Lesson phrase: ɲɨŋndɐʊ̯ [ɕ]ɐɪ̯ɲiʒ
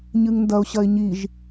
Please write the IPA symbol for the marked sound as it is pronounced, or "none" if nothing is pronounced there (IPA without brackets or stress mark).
ɕ